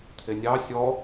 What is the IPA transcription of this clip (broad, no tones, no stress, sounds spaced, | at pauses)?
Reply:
t̪ʰ e nʲ ɑ sʲ ɔ